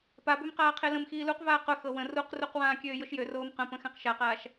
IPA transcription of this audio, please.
p a b ø m q aː qʰ e l ə̃ m x iː l u q v aː q ʊ x ɤ w ə̃ r u q r u q w ãː kʲ øː j ʊ ʃ j ø r oː m q ə̃ p ə̃ x æ̃ q ʃ a q aː ʃ

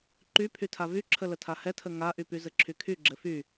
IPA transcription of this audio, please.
ǃ y pʰ y tʰ a v y ǁʰ ə l ə tʰ a h ɛ tʰ ə ŋ a ʔ y p y z ɘ ǁʰ y kʰ y ɡ͡ǁ ɘ f y

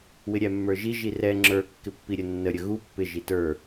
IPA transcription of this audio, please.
w ɪ ɾʲ æ mː ə˞ ʒ i ʒ i r ɛ ŋ͡ǁ ə˞ kː ɪ pː i ɾʲ ə nː ə ɾʲ ə ɣ u pː ɪ ʒ i t ə˞

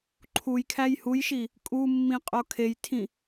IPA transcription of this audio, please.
ǃʰ u j kʰ æ j h u j ʃ i | kʼ u mː ĩ qʼ o kʰ e j tʰ ĩ

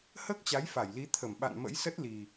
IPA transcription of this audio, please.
h əː˦˥ k̚ t͡ɕ a˨˦ j f a˧˩ j l i˨˦ t̪ʰ ə˧˩ m ɓ a̰˧˨ n m ə̰˧˥ j s ə˦˥ t̚ l i˨˩

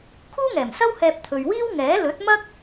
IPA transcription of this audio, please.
kʰ uː˥ ŋ ɛː˨˩ m s ɐ˥ w h ɛː˧ p̚ t̪ʰ ɵ˨ ɥ w iː˥ w ŋ ɛː˨˥ l ɵ˨˥ t̚ m ɐ˥ k̚

